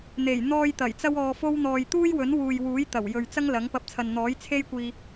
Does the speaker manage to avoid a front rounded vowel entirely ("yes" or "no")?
yes